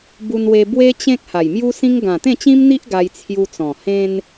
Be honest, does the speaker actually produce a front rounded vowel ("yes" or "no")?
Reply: no